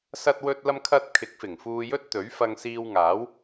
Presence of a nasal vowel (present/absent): absent